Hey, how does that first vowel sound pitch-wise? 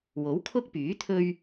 rising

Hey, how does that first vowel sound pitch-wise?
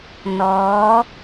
rising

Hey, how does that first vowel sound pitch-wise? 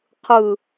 falling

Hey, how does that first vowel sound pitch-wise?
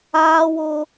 high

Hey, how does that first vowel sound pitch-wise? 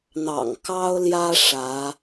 low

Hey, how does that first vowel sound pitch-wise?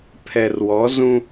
low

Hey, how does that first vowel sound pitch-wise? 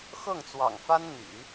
falling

